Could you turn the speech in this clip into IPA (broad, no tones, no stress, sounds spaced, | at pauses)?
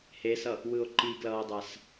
h e s ʌ | w ɯ o̯ ǃ i ɡ l ʌː o̯ dˤ a s